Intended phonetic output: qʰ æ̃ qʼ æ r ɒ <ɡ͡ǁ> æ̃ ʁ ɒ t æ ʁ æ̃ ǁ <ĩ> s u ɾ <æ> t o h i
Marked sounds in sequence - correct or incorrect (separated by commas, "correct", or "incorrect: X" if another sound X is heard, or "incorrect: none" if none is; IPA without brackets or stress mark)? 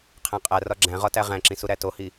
correct, correct, correct